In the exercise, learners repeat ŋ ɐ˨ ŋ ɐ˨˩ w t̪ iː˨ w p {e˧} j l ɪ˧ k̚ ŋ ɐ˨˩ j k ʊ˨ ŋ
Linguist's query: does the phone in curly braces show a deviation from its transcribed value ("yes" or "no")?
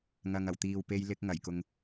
no